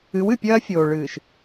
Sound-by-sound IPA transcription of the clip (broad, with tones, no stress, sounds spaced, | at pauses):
ɨ˨˦ w ɨ˨ pʲ ɐː˦ fʲ oː˨ ɭ ɨː˨ ʃ